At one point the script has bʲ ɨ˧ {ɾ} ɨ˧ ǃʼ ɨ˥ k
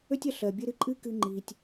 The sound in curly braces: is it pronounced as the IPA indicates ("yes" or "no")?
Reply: yes